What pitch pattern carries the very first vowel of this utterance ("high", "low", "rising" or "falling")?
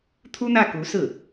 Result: high